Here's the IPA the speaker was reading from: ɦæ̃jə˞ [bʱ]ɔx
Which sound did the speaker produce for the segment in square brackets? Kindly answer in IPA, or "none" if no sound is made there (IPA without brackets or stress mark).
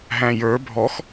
bʱ